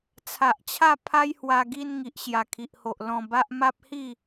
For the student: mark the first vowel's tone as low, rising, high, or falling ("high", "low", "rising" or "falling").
low